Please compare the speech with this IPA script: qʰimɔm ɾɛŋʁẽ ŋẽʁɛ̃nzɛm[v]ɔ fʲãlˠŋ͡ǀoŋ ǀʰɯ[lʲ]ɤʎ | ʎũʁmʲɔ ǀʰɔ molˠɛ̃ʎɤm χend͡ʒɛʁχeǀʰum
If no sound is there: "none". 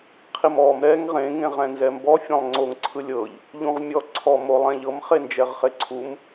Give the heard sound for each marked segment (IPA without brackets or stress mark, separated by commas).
b, lʲ